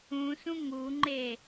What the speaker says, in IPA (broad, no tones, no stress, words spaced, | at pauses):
ũsũ ŋuŋ͡ǃe